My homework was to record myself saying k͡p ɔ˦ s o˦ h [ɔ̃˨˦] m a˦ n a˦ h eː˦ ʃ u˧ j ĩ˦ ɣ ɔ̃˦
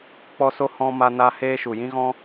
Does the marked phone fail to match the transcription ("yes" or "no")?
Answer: yes